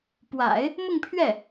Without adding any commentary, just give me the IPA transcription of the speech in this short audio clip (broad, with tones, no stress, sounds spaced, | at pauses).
p w a̰˨˩˦ ɪ̯ | m ʊ˥˧ ŋ pʰ ɥ ɛ˥˩